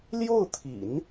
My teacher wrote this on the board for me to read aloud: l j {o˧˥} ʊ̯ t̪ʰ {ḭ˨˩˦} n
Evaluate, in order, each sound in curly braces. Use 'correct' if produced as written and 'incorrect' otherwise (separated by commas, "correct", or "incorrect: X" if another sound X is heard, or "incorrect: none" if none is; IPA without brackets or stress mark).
incorrect: o˥˩, correct